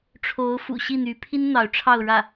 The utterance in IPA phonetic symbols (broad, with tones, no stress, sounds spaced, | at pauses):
ʈ͡ʂʰ o˧˥ ʊ̯ f ṵ˨˩ ɕ i˥˩ n̪ y˧˥ pʰ i˥ n n̪ ɑ˧˥ ʊ̯ ʈ͡ʂʰ ɑ˥˧ ʊ̯ ɻ ä˥˩